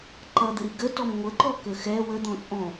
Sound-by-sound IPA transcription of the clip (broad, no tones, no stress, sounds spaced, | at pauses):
ǃ ʌ d̪ ə ɾ i ɡ ə t ɔ m ŋʷ ə ǃ ɔ k ə x ɛ w ə d̪ ɔ̃ t͡sʼ ɔ̃